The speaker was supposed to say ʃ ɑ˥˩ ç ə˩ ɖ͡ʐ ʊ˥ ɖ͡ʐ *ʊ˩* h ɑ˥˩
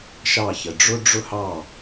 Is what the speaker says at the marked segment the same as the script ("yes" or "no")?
no